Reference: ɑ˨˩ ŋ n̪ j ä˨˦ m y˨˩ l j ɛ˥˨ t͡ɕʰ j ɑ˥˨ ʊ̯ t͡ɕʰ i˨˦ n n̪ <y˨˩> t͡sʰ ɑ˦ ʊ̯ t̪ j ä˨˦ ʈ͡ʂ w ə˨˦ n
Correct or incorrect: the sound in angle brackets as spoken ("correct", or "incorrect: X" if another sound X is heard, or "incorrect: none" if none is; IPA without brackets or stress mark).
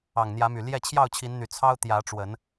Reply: correct